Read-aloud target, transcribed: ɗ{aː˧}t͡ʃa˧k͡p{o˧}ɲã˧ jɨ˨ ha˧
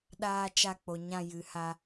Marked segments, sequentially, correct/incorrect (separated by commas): correct, incorrect